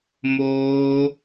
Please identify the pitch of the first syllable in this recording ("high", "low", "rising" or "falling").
high